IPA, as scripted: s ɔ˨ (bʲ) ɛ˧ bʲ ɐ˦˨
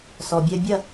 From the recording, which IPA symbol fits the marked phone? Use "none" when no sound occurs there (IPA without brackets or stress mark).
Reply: bʲ